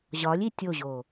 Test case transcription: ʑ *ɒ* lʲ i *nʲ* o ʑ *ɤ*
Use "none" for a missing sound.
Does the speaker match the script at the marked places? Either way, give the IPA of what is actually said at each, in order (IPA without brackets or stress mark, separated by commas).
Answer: ɒ, tʲ, o